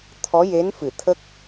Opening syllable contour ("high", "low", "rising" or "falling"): rising